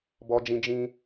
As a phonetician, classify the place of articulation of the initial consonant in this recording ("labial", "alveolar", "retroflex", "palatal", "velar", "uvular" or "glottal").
labial